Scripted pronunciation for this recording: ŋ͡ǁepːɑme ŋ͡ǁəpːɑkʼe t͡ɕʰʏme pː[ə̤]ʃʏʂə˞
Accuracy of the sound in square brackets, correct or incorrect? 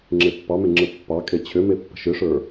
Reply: correct